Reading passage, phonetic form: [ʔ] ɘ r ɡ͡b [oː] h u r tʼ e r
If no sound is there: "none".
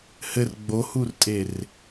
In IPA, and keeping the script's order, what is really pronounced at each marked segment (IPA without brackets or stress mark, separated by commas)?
h, o